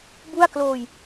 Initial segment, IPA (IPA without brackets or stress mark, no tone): b